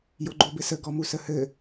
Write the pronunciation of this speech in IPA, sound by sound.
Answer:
j o ɡ͡ǃ o b ɘ s ə ɡ ɔ m u s ə h ɘ

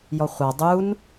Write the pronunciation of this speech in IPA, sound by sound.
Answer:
j ɔ χʷ a dˤ u n

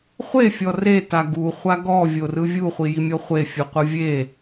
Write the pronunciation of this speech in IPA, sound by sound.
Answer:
χʷ e fʲ ɔ r e t a ɡ u χʷ a ɡ ɔ vʲ o r ɯ vʲ u χʷ i j i mʲ ɔ χʷ e fʲ ɯ qʷ ɯ vʲ e

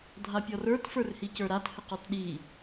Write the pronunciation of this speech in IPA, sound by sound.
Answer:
dʱ a pʲ ɔ r ə˞ t f ə˞ r h i c ə˞ ɾ a t h ɘ q ɔ t ɗ i

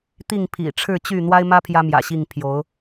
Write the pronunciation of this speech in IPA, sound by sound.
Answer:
t̪ i˥˨ ŋ pʰ ḭ˨˩ ʈ͡ʂʰ ɻ̩˥˨ t͡ɕ y˥˨ n̪ w a˦ ɪ̯ m ä˦ pʰ j ä˦ m j ä̰˨˩ ɕ i˥˨ ŋ pʰ j o˨˦ ʊ̯

